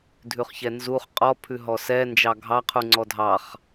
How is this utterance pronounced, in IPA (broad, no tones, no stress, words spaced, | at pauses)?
dʱʉχçɛnzuχ qʼɔ pʰʉɦɔsɛ nd͡ʒɑɡʱɑ qʰuŋ͡ǀɔdʱɑχ